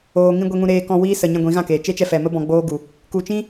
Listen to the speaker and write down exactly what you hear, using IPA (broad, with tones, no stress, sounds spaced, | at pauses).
oː˨ ŋ ĩ˧ ɡʷ e˧ ŋ ũ˧ ɾ eː˧ k ɔ̃˧ w iː˧ s ə˨ ɲ ɛ̃˧ ɡʷ ĩ˨˦ ɣ ã˦˨ k eː˨ t͡ʃ e˦ t͡ʃ ɛ˧ f ɛ˨ m ə˦ b ɔ̃˧ ɡ͡b oː˦ ɡ u˨ | k u˨ t͡ʃ ĩ˦